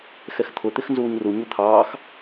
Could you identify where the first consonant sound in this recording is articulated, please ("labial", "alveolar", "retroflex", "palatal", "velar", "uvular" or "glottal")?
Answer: velar